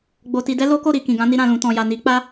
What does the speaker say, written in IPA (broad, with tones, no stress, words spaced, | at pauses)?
ɡ͡bo˧ ti˧dɛ˦lo˦ ko˦˨ɾi˨ kĩ˨ɡã˨˦ni˧ ɾã˨lũ˨tɔ̃˨ja˨ ni˨˦k͡pa˦